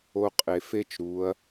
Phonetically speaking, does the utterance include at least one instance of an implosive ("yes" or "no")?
no